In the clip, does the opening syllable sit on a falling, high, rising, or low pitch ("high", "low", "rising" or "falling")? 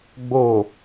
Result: low